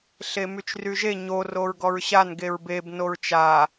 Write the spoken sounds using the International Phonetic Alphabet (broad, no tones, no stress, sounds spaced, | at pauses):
ɬ e m y t͡ʃ r y ʒ e ɲ o r o ɹ ɡ ɔ ɹ ɕ a n ɡ e ɹ b e b n o ɹ t͡ʃ a